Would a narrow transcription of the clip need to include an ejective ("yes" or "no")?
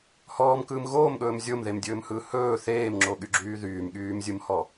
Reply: no